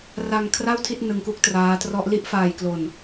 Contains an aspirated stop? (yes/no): yes